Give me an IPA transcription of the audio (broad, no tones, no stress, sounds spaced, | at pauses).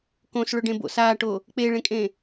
k õ s ɭ ɵ ɖ ẽ b o̰ s aː ʈ o | k͡p e ɭ ẽ kʼ ẽ